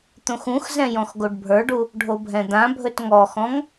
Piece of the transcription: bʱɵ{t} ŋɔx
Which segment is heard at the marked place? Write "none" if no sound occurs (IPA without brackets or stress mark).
t